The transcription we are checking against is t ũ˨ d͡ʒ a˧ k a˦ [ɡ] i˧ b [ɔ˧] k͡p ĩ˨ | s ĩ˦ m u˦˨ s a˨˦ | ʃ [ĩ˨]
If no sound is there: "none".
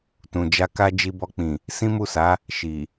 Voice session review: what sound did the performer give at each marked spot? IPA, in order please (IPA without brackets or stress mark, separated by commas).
d͡ʒ, ɔ˧, i˨